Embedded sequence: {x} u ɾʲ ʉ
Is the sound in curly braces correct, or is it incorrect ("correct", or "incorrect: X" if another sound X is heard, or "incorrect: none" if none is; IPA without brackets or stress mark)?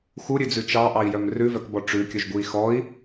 correct